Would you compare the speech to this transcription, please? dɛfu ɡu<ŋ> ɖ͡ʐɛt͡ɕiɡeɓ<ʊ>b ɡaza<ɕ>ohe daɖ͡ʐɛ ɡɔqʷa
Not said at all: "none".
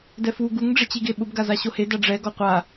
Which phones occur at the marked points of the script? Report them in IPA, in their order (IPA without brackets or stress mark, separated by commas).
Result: ŋ, ʊ, ɕ